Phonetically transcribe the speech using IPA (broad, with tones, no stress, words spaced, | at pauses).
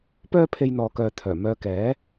pœː˥ pʰe˧jn̪ɔː˨kœː˨t̪ʰœː˨˩ mœː˧kɛː˨˥